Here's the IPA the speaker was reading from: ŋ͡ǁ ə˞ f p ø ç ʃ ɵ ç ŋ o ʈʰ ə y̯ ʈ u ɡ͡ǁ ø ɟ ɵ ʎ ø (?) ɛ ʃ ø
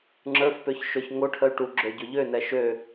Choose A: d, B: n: B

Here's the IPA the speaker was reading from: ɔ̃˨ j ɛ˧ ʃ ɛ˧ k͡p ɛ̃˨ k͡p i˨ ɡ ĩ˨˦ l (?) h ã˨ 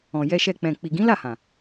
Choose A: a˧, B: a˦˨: B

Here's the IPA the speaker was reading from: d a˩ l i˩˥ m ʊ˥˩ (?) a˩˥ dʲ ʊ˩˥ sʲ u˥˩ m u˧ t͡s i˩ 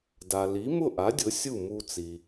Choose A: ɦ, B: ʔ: B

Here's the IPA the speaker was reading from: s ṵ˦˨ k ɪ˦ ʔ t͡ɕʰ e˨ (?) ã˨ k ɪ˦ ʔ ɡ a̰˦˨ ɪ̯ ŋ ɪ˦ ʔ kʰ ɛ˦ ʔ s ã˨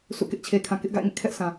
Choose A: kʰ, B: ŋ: A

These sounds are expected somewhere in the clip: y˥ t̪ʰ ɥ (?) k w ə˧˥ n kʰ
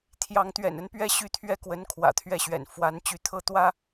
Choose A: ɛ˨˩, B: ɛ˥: B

